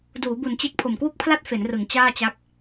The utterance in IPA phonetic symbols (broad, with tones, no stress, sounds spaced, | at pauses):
d uː˩˦ b u˨˩ n t͡ɕ e˦˥ k̚ pʰ o˨˩ m k w u˥˩ k̚ pʰ l a˥˩ t̚ f e˩˦ n r ɯ˩˦ ŋ t͡ɕ aː˥˩ t͡ɕ a˦˥ k̚